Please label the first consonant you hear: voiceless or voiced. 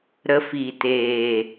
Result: voiced